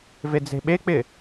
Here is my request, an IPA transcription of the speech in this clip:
ved͡ze̤ɓek͡pɪ

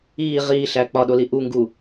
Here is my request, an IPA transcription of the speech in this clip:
iː ʁiːɬæ k͡pɒɗoli ʔuŋɡuː

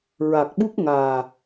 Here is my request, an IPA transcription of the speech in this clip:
ɹa˨˩k̚ɓu˦˥k̚ŋaː˨˩

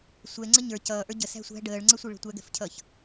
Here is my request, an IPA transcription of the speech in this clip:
sʷɛ ŋ͡ǀəɲə˞ cʌːʔə˞ ɟə sæ̤sʷæ̤ ɖəːɭŋ͡ǀəsʷiɭə̤ tʷæɡɛ̤fcʰʌːç

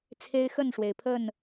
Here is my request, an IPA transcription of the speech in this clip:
t͡sʰe˦ɪ̯ xə˥˨nʂwe˩ɪ̯pʰə˥˨n

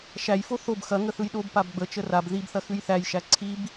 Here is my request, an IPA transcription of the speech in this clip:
ʃæjfo θob xɐŋə θɯjɗob pabɡ͡bə t͡ʃərab ðibθɐ xʉjθæjʃæ ǀʰib

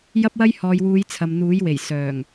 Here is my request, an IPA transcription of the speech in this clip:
jɐ˥p̚wɐ˥j hɔː˨jwuː˨˧j t͡sʰɐ˨mn̪uː˨˥jwe˨˩j sœː˨˩ŋ

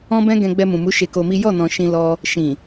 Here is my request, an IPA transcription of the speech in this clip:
ɔ̃˦bɛ̃˦ ɡɛ̃˧ɡ͡bɛ˧mũ˨mu˨˦ ʃe˧ko˧mi˦ jɔ˦˨nɔ̃˨ ʃĩ˧lɔ˧ | ʃĩ˨

